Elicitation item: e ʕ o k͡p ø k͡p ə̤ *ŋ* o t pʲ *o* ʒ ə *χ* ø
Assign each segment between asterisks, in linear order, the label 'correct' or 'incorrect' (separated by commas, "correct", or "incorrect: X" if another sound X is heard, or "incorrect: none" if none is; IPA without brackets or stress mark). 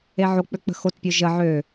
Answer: incorrect: x, correct, incorrect: ʕ